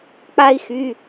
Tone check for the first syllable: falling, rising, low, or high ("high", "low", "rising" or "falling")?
high